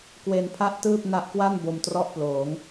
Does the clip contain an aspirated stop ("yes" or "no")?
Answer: yes